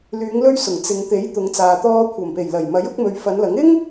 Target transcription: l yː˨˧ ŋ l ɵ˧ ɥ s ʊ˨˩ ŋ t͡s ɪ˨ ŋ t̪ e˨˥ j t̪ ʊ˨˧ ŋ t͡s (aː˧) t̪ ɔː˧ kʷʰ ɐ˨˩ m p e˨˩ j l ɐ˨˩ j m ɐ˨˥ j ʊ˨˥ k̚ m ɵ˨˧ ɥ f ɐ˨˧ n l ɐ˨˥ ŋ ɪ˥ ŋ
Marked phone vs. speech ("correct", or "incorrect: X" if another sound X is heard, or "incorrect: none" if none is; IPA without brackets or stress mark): incorrect: aː˨